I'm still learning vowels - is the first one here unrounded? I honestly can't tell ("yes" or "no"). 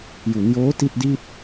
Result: no